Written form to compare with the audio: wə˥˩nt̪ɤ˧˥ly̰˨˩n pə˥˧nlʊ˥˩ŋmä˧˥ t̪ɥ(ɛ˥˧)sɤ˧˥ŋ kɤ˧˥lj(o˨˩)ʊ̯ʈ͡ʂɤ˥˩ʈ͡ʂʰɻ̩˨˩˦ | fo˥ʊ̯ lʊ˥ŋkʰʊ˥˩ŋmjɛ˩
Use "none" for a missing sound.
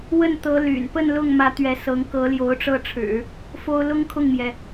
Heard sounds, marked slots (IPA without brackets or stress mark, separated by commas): ɛ˧˥, o˧˥